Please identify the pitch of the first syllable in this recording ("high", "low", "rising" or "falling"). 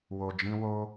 low